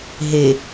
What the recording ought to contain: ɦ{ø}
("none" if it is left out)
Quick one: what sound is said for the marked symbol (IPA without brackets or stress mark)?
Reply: e